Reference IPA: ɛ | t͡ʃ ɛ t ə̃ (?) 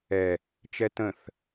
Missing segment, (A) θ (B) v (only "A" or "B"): A